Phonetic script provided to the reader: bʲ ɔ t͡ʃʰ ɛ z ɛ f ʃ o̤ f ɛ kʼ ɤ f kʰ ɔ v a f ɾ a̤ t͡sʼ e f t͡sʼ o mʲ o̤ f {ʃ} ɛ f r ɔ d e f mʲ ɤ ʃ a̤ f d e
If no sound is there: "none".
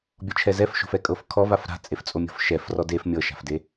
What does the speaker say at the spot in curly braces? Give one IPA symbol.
ʃ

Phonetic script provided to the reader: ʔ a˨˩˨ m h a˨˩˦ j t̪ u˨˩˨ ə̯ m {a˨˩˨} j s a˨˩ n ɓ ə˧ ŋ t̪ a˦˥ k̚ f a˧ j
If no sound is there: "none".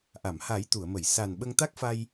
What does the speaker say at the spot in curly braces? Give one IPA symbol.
ə˨˩˨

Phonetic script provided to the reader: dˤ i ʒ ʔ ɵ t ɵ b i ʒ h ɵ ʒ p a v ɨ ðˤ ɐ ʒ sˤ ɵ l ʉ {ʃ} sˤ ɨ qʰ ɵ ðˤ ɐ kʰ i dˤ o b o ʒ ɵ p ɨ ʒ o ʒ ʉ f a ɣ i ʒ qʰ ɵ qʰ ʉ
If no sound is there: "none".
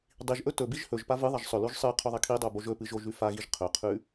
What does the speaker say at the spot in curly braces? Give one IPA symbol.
ʒ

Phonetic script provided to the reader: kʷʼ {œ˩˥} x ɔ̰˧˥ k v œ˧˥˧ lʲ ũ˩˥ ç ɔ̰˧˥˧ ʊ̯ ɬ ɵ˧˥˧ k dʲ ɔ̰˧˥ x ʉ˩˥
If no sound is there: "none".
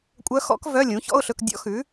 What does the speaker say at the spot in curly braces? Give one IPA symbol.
œ˧˥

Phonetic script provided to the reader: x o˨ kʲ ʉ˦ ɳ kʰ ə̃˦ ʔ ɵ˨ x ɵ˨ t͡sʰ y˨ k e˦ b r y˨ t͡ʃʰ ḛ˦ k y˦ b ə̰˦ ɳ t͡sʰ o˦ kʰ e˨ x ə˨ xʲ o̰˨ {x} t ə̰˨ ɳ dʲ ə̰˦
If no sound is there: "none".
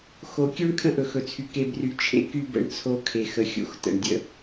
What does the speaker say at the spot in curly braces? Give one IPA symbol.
x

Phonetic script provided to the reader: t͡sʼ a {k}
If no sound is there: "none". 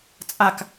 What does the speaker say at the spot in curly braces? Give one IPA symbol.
k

